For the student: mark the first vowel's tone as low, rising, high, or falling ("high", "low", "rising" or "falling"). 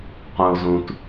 low